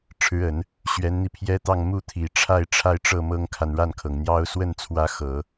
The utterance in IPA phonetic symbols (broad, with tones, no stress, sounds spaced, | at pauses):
ʈ͡ʂʰ ɻ̩˧˥ ə˨˩˦ n | ɕ ɥ ɛ˧˥ n n̪ i˧ pʰ j ɛ˥ t̪ ɑ˥˧ ŋ m u˥˩ t̪ʰ i˨˩ ʈ͡ʂʰ a˥˧ ɪ̯ ʈ͡ʂʰ a˥˧ ɪ̯ ʈ͡ʂ ɤ˥˩ m ɤ˥ ŋ kʰ a˨ n ɻ a˥˩ n kʰ ɤ˩ ŋ n̪ j ɑ˥ ʊ̯ s w ə˥˩ n t͡sʰ w ä˧˥ x ɤ˨˩˦